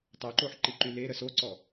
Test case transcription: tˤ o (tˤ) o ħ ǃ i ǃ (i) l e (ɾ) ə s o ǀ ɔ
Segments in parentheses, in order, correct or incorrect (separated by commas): incorrect, incorrect, correct